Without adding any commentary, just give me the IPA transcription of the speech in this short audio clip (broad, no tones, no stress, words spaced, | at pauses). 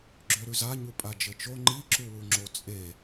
ɡ͡ǁøɾʉza ɲupʼad͡ʒɘt͡ʃo ŋ͡ǃiǁuwu ŋ͡ǁot͡sʼe